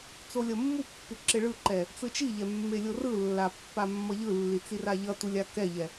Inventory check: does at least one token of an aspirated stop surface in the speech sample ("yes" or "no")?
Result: no